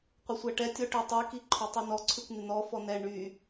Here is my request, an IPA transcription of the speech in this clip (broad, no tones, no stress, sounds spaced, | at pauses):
qʷ ɪ sʷ æ ʈ ɛ tʲ ɔ ʈ y tˤ i k i ǃʰ ɔ tˤ i n ɔ ǀʰ ʉ kʷ n̪ ɪ n̪ ɔ f ɔ n ɛ ɳ y